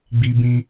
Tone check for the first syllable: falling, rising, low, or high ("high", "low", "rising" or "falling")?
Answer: high